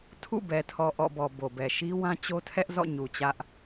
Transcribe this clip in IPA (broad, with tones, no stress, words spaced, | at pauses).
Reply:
tʰṵ˦˨ bɛ˨tʰɔ˨ ʔɔ̰˦˨bɔ˨ bo˨bɛ˨ ʃi˦ wã˦t͡ɕo˦tʰɛ˦ʔ zɔ̰˦˨ɲu˨ t͡ɕä˦ʔ